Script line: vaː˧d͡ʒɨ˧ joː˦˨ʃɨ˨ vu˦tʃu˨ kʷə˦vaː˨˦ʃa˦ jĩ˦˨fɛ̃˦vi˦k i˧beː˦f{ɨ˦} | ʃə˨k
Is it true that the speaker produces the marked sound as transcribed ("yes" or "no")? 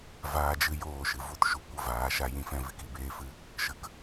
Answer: yes